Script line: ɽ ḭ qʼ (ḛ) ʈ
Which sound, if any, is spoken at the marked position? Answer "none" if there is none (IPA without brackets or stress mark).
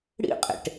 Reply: ḛ